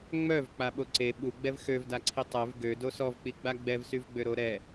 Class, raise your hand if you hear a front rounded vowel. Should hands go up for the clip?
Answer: yes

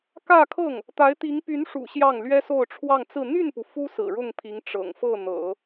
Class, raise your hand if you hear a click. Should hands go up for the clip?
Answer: no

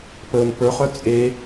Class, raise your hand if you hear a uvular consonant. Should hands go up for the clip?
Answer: yes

